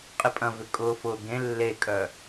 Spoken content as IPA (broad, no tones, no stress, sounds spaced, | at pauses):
qʼ ɪ pʼ ɐ̃ v ʏ kʼ ʊː f ʊː ɡ ẽ lː e kʼ œ